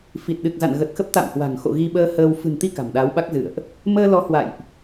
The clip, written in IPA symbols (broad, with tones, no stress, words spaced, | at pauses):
fi˨˩t̚ɗɨ˨˩k̚za̰˧˨n ɣə˨˩t̚xə˦˥p̚ t̪a̰˧˨mhwa̤˨˩ŋxo̰˧˨ ɣi˧ɓəː˧həː˧w fɨ̤˨˩nt̪i˧ ka̤˨˩mɗaː˨˦wɓa˦˥k̚ zɨ̰˧˨ə̯ʔ | məː˧lɔ˨˦ hwa̰˧˨jʔ